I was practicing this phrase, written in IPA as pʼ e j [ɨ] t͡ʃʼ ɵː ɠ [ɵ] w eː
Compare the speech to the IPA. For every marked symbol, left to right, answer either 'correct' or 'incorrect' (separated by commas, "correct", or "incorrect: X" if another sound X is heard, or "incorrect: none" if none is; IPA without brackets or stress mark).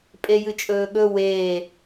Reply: correct, correct